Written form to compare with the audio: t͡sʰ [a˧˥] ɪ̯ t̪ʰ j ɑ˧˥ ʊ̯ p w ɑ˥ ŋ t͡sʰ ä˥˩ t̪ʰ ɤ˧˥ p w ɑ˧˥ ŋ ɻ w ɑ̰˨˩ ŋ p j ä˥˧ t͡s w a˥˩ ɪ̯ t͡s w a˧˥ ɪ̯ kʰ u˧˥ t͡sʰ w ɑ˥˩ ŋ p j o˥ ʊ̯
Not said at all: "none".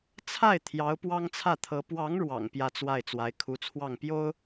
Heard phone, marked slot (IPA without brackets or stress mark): a˥˩